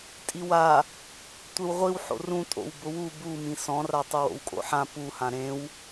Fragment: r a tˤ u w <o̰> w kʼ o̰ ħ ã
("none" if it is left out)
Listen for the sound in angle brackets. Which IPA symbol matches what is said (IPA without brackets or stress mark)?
o̰